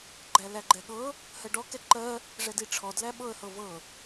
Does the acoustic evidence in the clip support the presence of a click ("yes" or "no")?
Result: yes